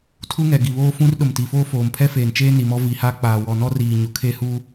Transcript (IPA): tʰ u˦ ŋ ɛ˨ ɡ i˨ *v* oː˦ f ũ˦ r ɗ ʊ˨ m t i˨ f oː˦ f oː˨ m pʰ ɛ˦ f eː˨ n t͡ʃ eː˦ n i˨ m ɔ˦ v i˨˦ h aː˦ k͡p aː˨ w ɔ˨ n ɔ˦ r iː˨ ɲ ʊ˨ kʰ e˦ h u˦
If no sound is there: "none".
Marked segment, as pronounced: β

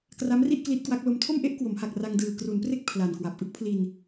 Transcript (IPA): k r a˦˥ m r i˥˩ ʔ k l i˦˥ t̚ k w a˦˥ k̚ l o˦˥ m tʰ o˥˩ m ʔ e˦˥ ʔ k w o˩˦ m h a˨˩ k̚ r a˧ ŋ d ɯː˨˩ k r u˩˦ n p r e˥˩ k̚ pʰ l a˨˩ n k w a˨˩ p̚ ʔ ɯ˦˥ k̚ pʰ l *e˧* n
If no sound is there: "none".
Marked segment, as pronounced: i˧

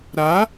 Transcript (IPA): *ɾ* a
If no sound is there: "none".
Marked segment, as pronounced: ɾ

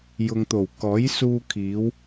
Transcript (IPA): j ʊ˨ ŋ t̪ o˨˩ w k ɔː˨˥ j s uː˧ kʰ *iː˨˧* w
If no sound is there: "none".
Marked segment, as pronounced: iː˨˧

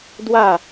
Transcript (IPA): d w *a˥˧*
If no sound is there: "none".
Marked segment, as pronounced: a˥˧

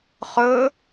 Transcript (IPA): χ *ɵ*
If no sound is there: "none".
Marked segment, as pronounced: ɵ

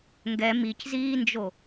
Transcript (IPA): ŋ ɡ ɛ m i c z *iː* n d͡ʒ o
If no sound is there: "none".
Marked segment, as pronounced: iː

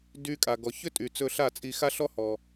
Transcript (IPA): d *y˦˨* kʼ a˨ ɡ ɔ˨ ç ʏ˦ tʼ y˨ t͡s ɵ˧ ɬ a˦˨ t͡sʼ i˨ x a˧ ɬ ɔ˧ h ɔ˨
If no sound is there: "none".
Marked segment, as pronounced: y˧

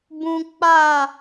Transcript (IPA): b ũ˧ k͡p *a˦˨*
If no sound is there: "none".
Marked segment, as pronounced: a˦˨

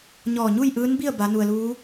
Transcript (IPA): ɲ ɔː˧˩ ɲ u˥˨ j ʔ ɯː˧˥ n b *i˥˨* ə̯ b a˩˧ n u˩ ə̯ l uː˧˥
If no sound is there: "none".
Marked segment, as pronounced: i˥˨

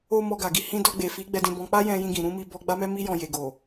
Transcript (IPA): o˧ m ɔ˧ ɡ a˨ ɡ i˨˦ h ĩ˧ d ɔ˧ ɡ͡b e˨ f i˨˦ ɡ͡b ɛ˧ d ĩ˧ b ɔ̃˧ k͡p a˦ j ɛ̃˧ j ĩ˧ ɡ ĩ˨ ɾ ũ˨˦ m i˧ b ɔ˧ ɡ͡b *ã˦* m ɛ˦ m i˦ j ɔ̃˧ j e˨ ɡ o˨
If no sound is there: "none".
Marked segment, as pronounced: a˦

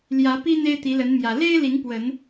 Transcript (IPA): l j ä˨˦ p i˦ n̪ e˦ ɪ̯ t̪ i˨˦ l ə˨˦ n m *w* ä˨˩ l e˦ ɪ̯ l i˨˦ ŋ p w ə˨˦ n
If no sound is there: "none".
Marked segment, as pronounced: j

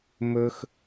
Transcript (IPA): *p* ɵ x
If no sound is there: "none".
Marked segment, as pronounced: m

